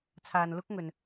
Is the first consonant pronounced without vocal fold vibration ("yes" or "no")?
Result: yes